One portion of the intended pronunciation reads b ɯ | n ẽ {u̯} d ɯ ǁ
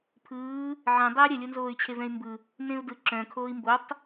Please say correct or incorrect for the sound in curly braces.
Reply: correct